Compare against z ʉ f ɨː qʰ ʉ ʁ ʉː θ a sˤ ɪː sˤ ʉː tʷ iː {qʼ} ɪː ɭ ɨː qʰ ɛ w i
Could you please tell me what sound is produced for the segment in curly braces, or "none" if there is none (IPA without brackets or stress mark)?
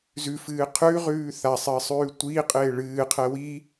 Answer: qʼ